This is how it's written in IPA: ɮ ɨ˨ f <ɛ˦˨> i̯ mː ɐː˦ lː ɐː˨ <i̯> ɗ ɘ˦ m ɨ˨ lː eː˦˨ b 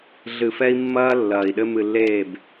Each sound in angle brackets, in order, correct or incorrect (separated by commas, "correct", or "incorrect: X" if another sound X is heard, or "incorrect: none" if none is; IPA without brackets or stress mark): incorrect: ɛ˦, correct